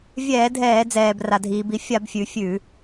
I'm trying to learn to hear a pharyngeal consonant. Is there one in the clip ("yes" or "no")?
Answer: no